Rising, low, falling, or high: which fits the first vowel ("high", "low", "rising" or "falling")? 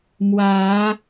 rising